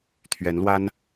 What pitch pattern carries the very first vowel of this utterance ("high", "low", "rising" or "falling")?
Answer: rising